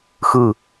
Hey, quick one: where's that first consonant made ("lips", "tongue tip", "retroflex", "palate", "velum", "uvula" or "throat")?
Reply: velum